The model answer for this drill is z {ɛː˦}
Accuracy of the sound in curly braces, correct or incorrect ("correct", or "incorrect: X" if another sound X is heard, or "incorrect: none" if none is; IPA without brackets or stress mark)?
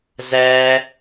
correct